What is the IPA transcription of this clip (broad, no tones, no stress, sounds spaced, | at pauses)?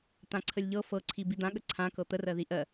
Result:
t̪ ã ǀʰ ə lʲ ʎ ɤ f ɤ ǀʰ i b i d̪ ã ɠ ə ǀʰ ã k ɤ t̪ ə r ɜ ð i ʔ ɜ